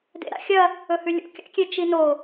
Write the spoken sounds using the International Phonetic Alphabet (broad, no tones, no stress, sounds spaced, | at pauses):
d ḛ ɾ a̰ xʲ ɐ | ɵ h ʉ lʲ ṵ kʲ a̰ kʲ e t͡ʃ i n o